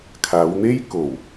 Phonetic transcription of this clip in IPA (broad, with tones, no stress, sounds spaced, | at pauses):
kʰ aː˨˧ w n̪ e˥ j k o˨˩ w